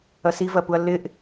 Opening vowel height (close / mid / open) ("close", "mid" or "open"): open